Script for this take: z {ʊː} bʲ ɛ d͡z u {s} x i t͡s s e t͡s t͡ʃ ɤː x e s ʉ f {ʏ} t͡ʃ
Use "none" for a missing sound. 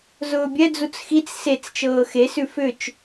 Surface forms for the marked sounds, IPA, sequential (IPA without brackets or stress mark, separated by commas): ʊː, t͡s, ʏ